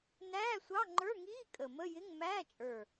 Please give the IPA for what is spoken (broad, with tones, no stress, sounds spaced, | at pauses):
n æː˧˥˧ sʷ ɑ˧˥˧ ŋ͡ǃ ə˞˧˥˧ ŋ iː˧˥˧ kʼ ə˨˩ m ə˧˥˧ j ɪ˧˥˧ ŋ m æː˧˥˧ t͡ʃʼ ə˞˨˩